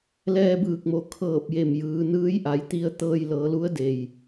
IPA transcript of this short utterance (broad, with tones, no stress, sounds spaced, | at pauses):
l ɛː˧ b ɯː˧˩ k̚ m o˩ kʰ ɤː˧˩ p̚ j e˧˩ m j ɯː˩˧ n ɯː˧˥ j ʔ a˩˧ j t̪ i˧˥ ə̯ t̪ ɤː˧ j l ɤː˩˧ l u˧˥ ə̯ d e˩ j